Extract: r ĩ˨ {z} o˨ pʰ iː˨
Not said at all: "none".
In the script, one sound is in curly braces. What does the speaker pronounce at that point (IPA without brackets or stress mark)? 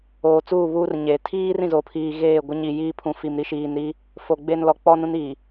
z